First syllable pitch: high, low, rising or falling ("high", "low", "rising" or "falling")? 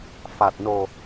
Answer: low